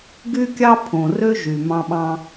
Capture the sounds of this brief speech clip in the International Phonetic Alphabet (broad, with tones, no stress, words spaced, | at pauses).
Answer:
ɡy˥kʲɑ˥ pʰõ˩rø˦ ʒy˩mɑ̃˦ɓɑ̃˦